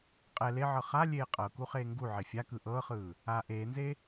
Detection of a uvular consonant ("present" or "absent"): present